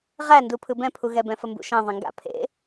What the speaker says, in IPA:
ʁændu pʰɯbɛ̃pʰuɣɛ bɛ̃fəmbṵʃɛ̃ ðˤɛ̃ŋɡa̰ pʰḛ

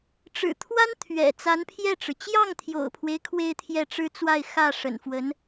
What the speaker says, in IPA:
ʈ͡ʂɻ̩˨˩t̪ʰwa˥n t̪ʰɥɛ̰˨˩ t͡sa˧˥npʰjɛ˥˩ʈ͡ʂɻ̩˩ t͡ɕjɑ˥˩ŋt̪ʰjo̰˨˩ʊ̯pʰwe˦ɪ̯ kʰwe˥˧ɪ̯ t̪ʰjɛ˥˩ ʈ͡ʂɻ̩˥t͡swa˥˧ɪ̯ xä˥˩ ʂə̰˨˩nfwə˧˥n

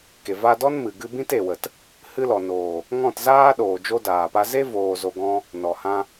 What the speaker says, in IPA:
ke˨va˧dɔ˦n mɨ˨ ɡɨ˧bĩ˦t e˨wə˨t | hɨ˧lɔ˨noː˨ | ŋɔ̃˦˨tzaː˦ɗoː˨ d͡ʒo˦daː˨pa˦ ze˦voː˨ zo˧ɡɔ̃˦ | nɔ˨hã˧

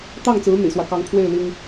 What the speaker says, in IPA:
t̪ɑ˥˩ŋt͡sɹ̩˧˥ n̪ḭ˨˩swä˦ kɑ˧˥ŋpʰwe˥˩ɪ̯ li˥ŋ

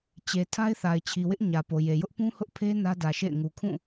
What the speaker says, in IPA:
t͡ɕe˨ tʰa˦ɪ̯θa˨ɪ̯ t͡ɕʰi˨wɪ˦ʔ ɲä˨po˨je˨ jʊ˦ʔpũ˦hʊ˦ʔ pʰe˦ nä˦dä˨ʃḛ˦˨ɪ̯ ŋu˨kʰũ˦˨

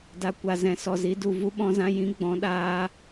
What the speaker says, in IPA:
da˨kʷa˨ zɛ̃˨sɔ˨zi˨˦du˨ vu˧ɓɔ̃˧zã˧ jĩ˨˦ ɡ͡bɔ̃˨˦ɗaː˧

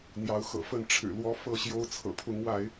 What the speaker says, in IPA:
n̪jɑ˨˦ʊ̯xɤ̰˨˩fə˥˨n ʈ͡ʂʰɻ̩˨˩lwɔ˨˦ fɤ˥˨ɕjo˦ʊ̯ t͡sʰɤ̰˨˩pʰʊ˨˦ŋwa˨˦ɪ̯

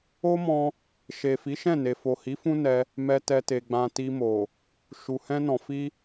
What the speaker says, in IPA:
o˦mɔ̃˧ | ʃe˨ fi˨˦ʃɛ̃˦˨ne˨ fo˨hi˨˦ fũ˦nɛ˧ | mɛ˧tɛ˧te˨ɡ͡bã˧ ti˧mo˨ | ʃu˨hɛ̃˧nɔ̃˨ fi˧

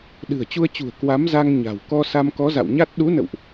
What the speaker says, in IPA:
ɗɨ̤˨˩ə̯t͡ɕu˧ə̯t͡ɕṳ˨˩ə̯ kwa˨˦mza˧ŋ ɲa̤˨˩w kɔ˧ sa˧mkɔ˨˦za̰˧˨w ɲa˦˥t̚ ɗu˨˦nə̰˧˨wʔ

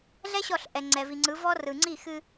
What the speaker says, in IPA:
ɮɛ˦ ɕɔ˦˨ɬ ʔɛ˨ŋ͡ǀɛ˨vi˨ ŋ͡ǀɯ˨˦vɔ˦ rɯ˨ŋ͡ǀi˦˨xɨ˦

